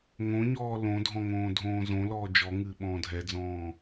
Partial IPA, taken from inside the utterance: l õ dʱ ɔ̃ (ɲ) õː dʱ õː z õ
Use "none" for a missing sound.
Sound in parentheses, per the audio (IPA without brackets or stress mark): ŋ